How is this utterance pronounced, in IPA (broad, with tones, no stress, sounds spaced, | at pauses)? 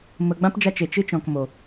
m ə˨ ɡ͡b ã˦ p d͡ʒ a˧ t͡ʃ e˨ t͡ʃ ɨ˦ t͡ʃ ɔ̃˨ k m o˨